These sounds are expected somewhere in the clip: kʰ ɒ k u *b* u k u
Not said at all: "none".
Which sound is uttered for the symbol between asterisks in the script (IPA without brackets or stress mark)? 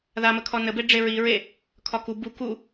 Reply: b